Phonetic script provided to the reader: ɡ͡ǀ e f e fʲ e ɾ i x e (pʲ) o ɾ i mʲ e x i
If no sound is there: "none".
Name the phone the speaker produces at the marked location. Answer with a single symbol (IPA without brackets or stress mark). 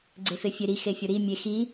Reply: fʲ